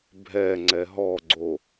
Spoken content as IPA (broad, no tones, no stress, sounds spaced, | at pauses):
bʱ ɛ ŋ͡ǀ ɛ ɦ ɔ ɡ͡ǀ o